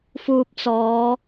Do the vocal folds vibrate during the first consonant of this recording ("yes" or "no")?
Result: no